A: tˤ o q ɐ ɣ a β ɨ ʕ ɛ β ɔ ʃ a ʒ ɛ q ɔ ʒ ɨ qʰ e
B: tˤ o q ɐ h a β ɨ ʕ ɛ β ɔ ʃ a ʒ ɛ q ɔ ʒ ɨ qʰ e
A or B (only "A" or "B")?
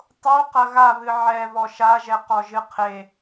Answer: A